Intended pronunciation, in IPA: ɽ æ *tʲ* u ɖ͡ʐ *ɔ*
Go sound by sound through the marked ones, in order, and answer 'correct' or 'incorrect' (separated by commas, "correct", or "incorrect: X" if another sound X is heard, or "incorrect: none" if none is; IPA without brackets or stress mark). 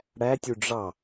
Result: correct, incorrect: ɑ